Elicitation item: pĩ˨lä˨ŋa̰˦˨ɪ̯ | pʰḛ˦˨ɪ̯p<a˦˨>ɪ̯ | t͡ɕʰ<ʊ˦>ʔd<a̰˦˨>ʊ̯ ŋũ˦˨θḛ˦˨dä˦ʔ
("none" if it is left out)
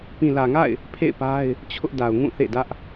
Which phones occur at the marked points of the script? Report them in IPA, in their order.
a˦, ʊ˦, a˨

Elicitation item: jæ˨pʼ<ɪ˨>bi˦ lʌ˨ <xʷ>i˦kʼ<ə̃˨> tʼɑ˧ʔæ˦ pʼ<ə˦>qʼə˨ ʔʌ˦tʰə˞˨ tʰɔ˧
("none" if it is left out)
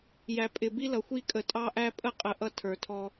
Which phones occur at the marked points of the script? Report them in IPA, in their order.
ɪ˨, xʷ, ə˨, ə˦

